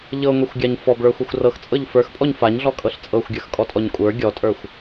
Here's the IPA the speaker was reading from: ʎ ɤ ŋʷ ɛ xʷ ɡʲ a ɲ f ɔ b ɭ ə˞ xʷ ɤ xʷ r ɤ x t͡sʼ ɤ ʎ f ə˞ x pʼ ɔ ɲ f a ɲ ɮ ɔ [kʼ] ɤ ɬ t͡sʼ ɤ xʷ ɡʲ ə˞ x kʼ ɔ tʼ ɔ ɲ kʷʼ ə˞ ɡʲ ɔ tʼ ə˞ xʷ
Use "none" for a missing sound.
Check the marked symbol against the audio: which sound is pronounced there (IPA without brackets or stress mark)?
kʼ